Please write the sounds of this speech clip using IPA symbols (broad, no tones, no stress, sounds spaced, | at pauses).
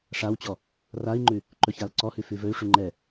ʂ a w t͡ɕ ɔ | r a i̯ ŋ͡ǃ ʉ | ǃ ɵ ç a l ǀ ɔ h ʉ f ʉ v ɵ y̯ ʂ ʉ ŋ͡ǃ ɛ